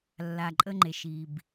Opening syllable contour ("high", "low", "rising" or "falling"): low